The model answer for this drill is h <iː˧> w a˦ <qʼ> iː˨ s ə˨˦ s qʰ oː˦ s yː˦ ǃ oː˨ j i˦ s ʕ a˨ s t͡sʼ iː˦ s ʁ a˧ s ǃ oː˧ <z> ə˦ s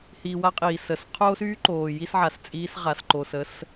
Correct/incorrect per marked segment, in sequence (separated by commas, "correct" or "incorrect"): correct, correct, incorrect